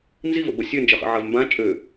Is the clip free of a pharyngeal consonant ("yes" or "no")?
no